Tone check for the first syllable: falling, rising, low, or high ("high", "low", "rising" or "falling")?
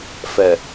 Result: low